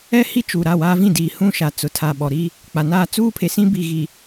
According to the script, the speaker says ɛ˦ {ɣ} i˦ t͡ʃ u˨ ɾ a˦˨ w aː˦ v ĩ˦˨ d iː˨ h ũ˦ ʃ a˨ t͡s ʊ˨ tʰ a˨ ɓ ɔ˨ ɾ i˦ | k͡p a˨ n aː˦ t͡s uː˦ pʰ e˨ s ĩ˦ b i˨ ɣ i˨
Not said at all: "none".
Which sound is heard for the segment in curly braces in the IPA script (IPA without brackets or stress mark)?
h